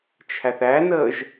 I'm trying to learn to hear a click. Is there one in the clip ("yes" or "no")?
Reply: no